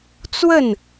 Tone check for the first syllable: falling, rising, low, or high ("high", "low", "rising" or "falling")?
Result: falling